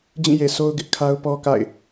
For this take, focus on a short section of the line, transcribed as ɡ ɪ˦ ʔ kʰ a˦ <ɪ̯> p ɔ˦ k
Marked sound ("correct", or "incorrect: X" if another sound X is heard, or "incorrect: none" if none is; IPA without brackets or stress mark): incorrect: ʊ̯